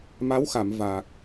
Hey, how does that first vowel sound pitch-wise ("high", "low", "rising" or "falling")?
rising